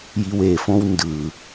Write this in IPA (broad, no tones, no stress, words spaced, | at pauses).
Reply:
jiwefõw ndɯ